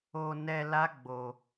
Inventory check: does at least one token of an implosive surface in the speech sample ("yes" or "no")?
no